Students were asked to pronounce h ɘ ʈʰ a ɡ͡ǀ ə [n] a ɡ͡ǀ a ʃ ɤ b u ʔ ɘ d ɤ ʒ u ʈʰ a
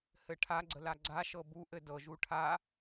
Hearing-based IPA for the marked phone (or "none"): l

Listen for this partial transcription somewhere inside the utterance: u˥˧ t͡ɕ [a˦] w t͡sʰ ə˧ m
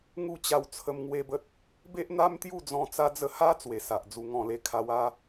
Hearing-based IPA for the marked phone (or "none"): a˧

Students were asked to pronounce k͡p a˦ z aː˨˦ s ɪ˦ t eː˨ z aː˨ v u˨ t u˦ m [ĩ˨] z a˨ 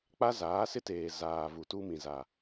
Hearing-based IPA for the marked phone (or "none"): ĩ˨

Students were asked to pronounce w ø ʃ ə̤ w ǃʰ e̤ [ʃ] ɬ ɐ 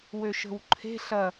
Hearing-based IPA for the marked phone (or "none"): none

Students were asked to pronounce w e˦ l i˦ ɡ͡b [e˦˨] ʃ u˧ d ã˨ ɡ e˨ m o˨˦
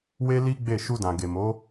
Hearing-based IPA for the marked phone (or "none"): e˦˨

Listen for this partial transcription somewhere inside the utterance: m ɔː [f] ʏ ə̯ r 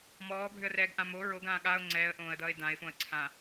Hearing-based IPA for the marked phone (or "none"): bʱ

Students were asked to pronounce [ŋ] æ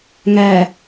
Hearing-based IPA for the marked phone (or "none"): ŋ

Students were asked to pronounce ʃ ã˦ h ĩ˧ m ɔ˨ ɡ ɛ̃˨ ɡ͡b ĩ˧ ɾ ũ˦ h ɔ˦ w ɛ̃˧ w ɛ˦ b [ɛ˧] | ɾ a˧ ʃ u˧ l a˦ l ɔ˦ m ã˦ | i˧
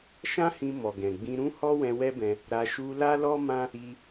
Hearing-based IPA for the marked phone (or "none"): ɛ̃˧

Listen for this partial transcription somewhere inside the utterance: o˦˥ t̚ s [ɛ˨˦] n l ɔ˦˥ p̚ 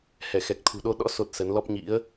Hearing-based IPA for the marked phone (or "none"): ə˨˦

